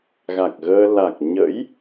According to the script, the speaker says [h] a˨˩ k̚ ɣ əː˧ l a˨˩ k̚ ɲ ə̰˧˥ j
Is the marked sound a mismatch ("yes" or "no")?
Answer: yes